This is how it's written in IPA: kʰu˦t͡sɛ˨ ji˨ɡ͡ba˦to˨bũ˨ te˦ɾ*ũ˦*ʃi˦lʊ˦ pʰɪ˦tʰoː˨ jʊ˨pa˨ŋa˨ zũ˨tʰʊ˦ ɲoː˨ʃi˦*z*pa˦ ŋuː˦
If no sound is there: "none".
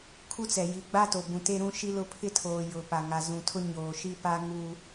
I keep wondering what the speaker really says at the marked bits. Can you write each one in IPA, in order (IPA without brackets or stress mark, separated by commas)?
ũ˦, none